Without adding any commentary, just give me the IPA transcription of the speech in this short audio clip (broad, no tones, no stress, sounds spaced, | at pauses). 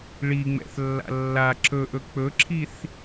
ɭ i ŋ͡m ɛ̰ θ lː a̰ lː a ǁ ɵ ʔ ɵ k͡p ɵ ǁʰ i θ